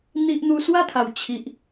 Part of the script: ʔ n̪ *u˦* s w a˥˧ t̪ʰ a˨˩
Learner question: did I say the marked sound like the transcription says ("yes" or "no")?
yes